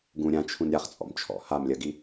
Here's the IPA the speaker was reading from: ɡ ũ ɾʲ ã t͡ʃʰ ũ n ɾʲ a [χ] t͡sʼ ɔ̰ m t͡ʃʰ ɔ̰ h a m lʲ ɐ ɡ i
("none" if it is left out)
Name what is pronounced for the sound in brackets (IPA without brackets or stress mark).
χ